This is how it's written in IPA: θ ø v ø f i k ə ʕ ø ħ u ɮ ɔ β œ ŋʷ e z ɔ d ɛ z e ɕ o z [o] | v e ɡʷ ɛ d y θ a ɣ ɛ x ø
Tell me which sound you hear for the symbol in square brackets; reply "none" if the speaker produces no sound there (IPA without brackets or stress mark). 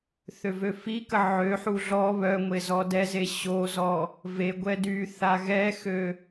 ɔ